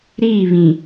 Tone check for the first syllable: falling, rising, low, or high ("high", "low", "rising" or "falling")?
falling